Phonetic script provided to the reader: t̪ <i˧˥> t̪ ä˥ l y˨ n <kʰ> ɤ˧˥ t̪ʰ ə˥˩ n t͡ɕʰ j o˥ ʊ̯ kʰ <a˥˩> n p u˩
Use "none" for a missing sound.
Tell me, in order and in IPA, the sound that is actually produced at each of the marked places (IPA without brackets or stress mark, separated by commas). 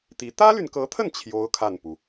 i˧˥, k, a˥˩